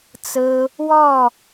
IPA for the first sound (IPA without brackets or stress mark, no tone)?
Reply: t͡s